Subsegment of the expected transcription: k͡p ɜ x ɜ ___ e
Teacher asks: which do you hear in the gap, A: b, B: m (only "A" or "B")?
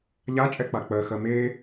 B